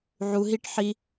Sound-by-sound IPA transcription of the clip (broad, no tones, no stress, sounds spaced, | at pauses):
ʕ u ɦ i ʈ ħ i